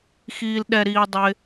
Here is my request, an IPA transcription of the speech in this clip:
x iː˨ l ɗ ɛ˨ ɾ iː˨ dˤ ɪ˧

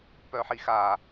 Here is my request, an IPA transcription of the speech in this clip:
p œ ħ i x a

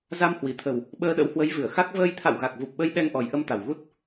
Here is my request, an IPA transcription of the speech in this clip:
z a˧ m h w i˧˩ t̪ʰ ə˨˩ w | ɓ əː˧ ɗ ə̰˧˥ w h w ə˨˦ j v ɨ˧˩ ə̯ x a˦˥ k̚ v əː˧ j t̪ʰ a̰˧˨ w ɣ a˨˩ k̚ v u˨˩ p̚ ɓ ə˧ j ɗ ɛ˧ ŋ ʔ ɔ˨˩ j ʔ ə˧ m t̪ a˨˩ w ɣ u˦˥ t̚

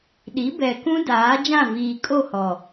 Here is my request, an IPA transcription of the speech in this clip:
ɗ i˨˦ b ɛ˨ k ũ˦ d aː˨˦ d͡ʒ ã˦˨ v iː˨ kʼ o˦˨ h ɔ˨

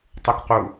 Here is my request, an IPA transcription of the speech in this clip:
tˤ u k q u

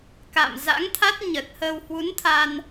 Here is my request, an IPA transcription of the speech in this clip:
k a̰˧˨ m z a̰˧˥ ŋ t̪ʰ a˦˥ t̚ ɲ ə˨˩ t̚ h əː˧ w h w u˨˦ n t̪ʰ a˧ n

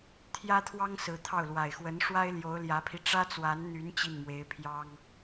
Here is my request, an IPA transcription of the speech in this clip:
t̪ʰ j ä˥ t̪ʰ w ɑ˥ ŋ s ɹ̩˧˥ t̪ʰ ɑ˥˩ ʊ̯ l w a˨˩ ɪ̯ x w ə˧˥ n ʂ w a˥ ɪ̯ l j o˧˥ ʊ̯ l j ä˧˥ pʰ i˧ ʈ͡ʂ ä˥ t͡s w a˧˥ n n̪ y˧˥ n t͡ɕ i˥˩ n m w e˧˥ ɪ̯ pʰ j ɑ˥ ŋ

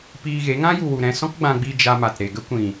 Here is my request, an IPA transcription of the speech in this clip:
p iː˧ ɣ e˨˦ ŋ ã˦ j u˨ w u˨ ɾ ɛ̃˧ s ɔ̃˦ k ɡ͡b ã˧ ɡ͡b i˧ d͡ʒ a˧ m a˨ t ɾ e˨ ɡ ə˦ kʷ ĩ˨

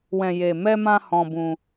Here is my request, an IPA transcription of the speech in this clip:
w ɛ̃˨ j e˨ m ɛ˧ m ã˧ h ɔ̃˧ b ũ˧

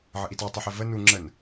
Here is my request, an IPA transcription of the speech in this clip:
ʕ ə ʔ i t ɑ tˤ ʊ ħ ɪ v ə n u ŋ͡ǁ ə n

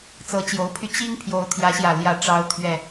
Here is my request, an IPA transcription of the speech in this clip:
t͡s ɤ˨˦ t͡ɕ j o˨˦ ʊ̯ pʰ y˧ t͡ɕ i˦ ŋ pʰ j o˨˦ ʊ̯ t̪ʰ j ä˨˦ ɕ j ä˨˩ l j ä˨˦ ʈ͡ʂ ɑ˨˦ ʊ̯ t̪ʰ ɥ ɛ˨˩

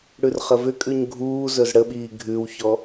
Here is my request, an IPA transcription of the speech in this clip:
ɽ ʉ r χ ə v ʏ kʼ ʉ ɲ ɡʱ uː z ɵ z ɽ ə ɓ iː ɡʱ ʉ w ç ɔ

